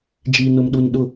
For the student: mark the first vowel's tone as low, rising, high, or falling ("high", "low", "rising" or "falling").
low